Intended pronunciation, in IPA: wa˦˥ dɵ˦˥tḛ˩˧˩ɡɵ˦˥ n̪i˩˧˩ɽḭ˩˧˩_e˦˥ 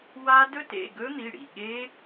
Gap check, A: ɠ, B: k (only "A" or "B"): A